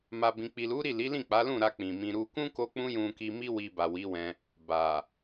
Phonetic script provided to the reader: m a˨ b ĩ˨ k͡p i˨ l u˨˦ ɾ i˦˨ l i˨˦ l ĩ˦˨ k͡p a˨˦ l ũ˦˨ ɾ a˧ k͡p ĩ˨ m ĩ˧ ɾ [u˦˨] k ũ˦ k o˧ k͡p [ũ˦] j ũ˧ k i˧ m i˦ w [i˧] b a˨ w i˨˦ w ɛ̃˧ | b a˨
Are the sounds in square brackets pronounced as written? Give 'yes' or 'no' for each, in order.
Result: no, yes, yes

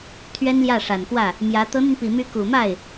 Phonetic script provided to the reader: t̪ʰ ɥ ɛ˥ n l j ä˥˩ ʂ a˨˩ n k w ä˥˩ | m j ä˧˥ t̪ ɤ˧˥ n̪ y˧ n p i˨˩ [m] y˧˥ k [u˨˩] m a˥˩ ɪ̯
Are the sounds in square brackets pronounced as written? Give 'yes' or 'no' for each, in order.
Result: yes, yes

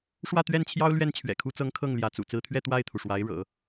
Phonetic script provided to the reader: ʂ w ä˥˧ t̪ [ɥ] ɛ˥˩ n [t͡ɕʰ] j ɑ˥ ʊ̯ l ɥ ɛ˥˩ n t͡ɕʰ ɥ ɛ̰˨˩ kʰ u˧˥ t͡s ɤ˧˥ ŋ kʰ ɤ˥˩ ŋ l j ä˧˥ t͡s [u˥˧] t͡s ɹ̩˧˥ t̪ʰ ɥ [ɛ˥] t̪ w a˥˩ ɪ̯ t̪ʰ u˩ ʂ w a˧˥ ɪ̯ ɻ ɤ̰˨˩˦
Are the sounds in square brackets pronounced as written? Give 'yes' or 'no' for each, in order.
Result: yes, yes, no, no

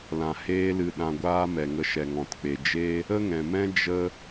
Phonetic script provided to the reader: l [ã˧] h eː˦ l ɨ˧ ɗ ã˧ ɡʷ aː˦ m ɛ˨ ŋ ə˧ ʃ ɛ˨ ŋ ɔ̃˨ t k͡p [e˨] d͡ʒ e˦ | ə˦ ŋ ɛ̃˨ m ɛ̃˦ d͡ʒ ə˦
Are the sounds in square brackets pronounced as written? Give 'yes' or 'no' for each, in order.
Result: no, yes

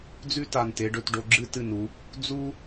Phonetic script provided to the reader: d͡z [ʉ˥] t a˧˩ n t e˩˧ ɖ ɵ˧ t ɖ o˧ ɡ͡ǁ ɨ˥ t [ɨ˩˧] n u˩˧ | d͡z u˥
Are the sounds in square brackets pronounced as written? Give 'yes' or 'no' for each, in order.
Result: yes, no

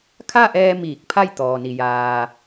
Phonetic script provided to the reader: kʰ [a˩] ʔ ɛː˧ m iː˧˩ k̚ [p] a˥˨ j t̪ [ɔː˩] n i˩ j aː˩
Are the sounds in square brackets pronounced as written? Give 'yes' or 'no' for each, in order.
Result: no, no, yes

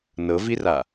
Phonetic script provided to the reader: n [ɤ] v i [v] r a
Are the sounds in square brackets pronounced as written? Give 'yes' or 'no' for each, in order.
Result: yes, no

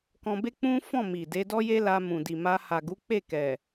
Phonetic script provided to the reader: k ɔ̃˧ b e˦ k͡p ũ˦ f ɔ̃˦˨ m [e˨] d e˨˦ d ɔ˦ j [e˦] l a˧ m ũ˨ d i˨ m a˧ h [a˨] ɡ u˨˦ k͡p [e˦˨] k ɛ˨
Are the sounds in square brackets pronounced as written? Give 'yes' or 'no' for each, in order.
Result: no, yes, yes, yes

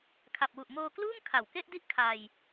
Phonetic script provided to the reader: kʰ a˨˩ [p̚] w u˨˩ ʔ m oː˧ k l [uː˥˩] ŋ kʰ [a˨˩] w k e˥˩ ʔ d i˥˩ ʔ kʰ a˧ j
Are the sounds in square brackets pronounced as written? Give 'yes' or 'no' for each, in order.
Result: yes, yes, yes

